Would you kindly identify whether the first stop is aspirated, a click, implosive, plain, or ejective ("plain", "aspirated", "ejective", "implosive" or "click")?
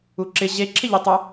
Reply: click